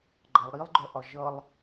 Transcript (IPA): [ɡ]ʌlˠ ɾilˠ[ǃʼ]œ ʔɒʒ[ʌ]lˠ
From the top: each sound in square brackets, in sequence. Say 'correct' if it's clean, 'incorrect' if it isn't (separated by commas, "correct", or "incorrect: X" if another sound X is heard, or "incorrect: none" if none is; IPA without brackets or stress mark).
incorrect: ɡ͡ǃ, incorrect: ɡ͡ǃ, correct